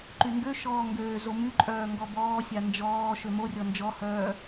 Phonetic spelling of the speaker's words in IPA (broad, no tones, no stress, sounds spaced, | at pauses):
ǃ y ŋ ɡ ø ʃ ɔː ŋ ɡ øː z o m y ǃʼ œː ŋ ɡ ɔ b ɔː sʲ a n d͡ʒ ɔː ʃ ø m o rʲ ɔ n d͡ʒ ɔ h œː